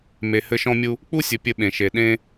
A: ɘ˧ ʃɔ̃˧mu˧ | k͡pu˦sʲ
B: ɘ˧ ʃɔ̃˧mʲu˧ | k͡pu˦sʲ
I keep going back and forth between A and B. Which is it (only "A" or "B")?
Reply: B